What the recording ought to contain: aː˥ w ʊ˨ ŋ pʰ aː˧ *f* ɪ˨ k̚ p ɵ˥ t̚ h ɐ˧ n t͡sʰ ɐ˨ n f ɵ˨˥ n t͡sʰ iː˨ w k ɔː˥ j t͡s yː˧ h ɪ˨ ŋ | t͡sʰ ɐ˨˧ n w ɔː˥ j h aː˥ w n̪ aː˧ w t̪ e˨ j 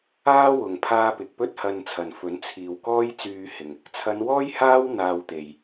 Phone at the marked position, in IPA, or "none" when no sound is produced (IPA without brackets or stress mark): p